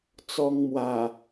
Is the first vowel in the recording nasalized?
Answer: no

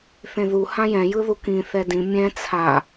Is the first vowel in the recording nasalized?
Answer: yes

